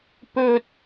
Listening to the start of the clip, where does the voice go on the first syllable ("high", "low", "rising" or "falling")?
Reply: high